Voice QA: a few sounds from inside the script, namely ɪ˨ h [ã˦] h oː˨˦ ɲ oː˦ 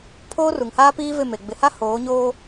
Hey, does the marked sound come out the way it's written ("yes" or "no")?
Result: no